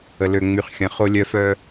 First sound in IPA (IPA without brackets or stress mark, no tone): ə